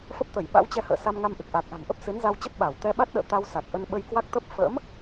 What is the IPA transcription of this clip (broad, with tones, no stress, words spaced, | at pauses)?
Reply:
fə˦˥p̚t̪ə˧˩j ɓa̰˧˥wt͡ɕɛ˧hə̰ː˧˨ sa˧mŋa˧mʔɨ˨˩k̚ ʔa˨˩k̚ ʔa̤˨˩ŋʔə˦˥p̚ sɨ˨˦nza˧wt͡ɕə˦˥p̚ ɓa˧˩w t̪ɛ˧ɓa˦˥t̚ɗə̰ː˧˨ t̪a˧wsa˨˩k̚ʔə˧n ɓə˧jkwa˦˥k̚t̪ə˦˥p̚ fə̰˧˥m